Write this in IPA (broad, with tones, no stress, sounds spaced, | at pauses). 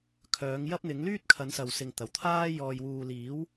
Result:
kʰ œː˨˥ ŋ j ɐ˥ p̚ n̪ ɪ˨˥ ŋ l yː˥ t̚ kʰ ɐ˨˥ n s ɐ˨ w s ɪ˨ ŋ t̪ ɐ˨˩ w t̪ʰ aː˥ j ɔː˨ j w uː˨ l iː˨˥ w